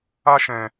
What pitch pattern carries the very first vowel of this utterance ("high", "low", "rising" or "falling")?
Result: high